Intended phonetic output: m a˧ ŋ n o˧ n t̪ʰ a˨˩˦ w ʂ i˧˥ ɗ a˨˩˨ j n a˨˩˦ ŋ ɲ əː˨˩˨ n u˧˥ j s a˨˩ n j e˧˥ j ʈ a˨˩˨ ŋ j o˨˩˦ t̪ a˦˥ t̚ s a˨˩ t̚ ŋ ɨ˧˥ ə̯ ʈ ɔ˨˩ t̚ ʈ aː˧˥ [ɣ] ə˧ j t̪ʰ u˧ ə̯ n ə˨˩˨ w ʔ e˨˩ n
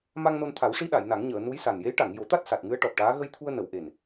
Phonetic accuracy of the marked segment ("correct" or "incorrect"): correct